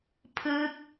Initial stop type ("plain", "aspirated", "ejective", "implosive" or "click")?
aspirated